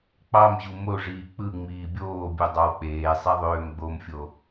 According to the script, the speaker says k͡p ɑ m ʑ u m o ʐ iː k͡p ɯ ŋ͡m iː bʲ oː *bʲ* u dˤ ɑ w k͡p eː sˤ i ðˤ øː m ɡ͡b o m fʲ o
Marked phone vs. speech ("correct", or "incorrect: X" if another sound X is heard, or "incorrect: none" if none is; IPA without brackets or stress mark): correct